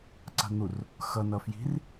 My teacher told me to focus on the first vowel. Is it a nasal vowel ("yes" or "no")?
no